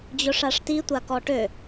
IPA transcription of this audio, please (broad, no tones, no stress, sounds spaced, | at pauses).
d͡ʑ ʊ ʂ a ʂ t i tʷ a k ɔ ʈ ø